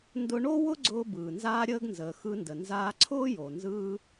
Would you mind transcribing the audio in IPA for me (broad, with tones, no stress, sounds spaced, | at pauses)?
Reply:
n d ʊ˧ ɳ o˥ w ʊ˥ ɡ͡ǀ ʊː˧ b ɯː˩ n z aː˧ ɾʲ əː˧ ɡ n z əː˩ x ɯ˧ n d ə˩ n z aː˧ ǀʰ ʊː˥ j o˩ n z ɯː˧